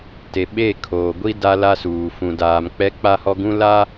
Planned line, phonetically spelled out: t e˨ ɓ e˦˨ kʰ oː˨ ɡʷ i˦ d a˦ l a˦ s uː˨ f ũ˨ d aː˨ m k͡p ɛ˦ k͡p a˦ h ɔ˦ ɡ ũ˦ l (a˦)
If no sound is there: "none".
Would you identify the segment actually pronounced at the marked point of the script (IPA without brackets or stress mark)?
a˦